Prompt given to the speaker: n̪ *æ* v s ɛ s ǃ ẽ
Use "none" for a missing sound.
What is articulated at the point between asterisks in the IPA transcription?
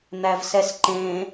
æ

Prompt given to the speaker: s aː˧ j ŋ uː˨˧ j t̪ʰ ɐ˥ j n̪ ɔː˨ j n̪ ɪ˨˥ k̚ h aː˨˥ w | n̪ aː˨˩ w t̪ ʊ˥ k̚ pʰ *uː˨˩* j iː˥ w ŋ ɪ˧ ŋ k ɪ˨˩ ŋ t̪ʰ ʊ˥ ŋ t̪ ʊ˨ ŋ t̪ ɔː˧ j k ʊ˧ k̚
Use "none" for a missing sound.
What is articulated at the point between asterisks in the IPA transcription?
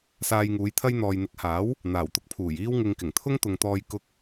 uː˨˩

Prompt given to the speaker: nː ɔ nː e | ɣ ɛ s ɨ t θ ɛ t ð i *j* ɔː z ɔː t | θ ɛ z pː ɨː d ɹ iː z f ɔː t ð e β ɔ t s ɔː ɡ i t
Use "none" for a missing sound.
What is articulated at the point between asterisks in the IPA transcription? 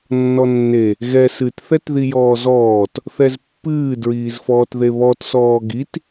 j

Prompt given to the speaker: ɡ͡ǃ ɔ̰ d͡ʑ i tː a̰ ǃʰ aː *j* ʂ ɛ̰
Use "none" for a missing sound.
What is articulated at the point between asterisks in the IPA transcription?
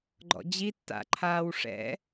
w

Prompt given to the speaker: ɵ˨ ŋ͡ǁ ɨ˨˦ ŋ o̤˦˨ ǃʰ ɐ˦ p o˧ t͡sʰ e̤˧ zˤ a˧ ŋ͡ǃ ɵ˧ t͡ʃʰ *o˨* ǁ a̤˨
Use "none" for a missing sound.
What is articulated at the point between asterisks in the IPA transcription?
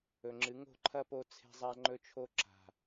o˧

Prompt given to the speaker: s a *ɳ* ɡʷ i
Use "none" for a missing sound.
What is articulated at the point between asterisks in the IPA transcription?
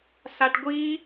ʈ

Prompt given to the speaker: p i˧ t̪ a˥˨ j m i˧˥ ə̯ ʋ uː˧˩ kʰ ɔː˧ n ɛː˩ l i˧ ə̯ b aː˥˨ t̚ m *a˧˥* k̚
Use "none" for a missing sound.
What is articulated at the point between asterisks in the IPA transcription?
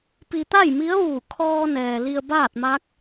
a˧˥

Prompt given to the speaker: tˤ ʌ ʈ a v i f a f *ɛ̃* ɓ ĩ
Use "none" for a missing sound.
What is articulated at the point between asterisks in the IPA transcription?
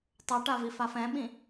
ɛ̃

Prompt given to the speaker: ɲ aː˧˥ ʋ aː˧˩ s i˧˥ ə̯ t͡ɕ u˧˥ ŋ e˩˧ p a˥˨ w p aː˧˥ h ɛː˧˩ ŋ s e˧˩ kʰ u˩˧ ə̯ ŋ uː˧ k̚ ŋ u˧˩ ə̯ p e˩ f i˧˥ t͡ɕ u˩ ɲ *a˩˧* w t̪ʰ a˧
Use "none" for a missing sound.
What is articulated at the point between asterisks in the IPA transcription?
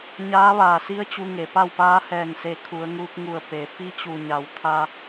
a˩˧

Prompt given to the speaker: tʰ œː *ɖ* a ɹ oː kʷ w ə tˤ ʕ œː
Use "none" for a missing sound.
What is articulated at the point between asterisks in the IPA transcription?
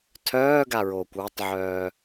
ɡ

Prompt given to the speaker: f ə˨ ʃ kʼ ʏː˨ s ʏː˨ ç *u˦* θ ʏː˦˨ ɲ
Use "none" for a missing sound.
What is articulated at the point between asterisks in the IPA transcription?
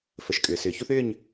u˦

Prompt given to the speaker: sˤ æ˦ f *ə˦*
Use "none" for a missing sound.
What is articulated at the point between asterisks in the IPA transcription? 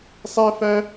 æ˦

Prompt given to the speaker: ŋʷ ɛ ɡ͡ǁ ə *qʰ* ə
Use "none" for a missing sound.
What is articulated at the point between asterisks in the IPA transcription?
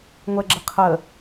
qʰ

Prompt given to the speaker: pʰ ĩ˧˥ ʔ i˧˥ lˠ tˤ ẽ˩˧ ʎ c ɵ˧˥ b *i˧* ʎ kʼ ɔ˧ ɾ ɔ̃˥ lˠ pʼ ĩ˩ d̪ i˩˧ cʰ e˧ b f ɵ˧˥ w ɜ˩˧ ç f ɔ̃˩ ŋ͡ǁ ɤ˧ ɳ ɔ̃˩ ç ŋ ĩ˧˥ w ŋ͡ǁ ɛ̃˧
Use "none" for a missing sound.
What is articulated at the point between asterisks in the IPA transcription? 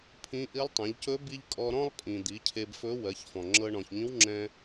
i˥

